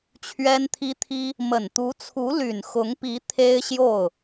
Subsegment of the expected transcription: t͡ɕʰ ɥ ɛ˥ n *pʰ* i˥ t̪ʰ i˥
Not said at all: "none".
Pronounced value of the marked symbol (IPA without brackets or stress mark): t̪ʰ